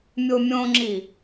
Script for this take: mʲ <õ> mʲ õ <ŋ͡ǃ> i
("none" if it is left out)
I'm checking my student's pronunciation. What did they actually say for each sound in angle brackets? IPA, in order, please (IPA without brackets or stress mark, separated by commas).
o, ŋ͡ǁ